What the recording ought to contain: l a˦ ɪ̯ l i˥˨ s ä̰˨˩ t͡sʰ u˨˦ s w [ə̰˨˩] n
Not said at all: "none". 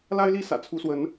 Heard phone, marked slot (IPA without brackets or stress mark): ə˨˦